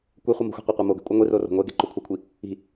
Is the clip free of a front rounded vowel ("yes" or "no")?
yes